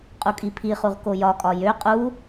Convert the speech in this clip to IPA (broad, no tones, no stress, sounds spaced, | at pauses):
qʼ u kʼ i pʰ i χ u ʁ k o j ɒ kʼ ɒ j ø qʼ u